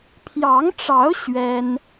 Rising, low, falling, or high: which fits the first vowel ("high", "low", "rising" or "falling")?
rising